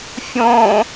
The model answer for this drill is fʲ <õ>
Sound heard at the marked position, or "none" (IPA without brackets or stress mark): õ